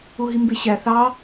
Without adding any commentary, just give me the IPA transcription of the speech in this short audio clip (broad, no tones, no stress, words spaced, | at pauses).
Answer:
uɦimbeɕæ θɑ